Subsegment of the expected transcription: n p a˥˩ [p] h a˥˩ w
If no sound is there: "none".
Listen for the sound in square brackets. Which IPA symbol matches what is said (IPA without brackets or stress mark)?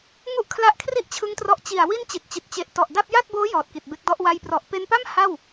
m